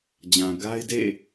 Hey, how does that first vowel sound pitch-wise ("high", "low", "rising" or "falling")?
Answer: low